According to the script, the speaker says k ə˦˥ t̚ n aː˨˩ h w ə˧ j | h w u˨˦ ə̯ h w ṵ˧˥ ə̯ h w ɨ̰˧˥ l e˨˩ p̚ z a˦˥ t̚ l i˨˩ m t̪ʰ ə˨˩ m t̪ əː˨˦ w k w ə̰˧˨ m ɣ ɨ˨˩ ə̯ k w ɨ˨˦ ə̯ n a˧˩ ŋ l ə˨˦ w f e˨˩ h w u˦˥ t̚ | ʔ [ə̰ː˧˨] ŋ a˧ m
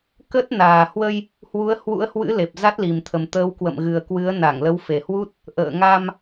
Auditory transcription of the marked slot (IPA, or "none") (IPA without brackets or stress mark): ə̰ː˧˨